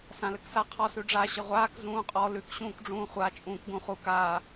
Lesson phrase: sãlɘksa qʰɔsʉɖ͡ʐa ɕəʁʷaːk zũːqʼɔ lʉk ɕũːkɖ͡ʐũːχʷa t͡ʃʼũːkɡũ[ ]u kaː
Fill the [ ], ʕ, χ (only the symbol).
χ